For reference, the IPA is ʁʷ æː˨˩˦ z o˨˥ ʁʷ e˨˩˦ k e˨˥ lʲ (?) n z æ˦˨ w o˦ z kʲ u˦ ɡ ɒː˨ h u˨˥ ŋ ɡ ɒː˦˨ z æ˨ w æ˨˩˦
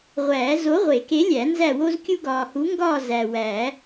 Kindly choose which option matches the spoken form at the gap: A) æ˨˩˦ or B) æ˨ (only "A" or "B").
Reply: A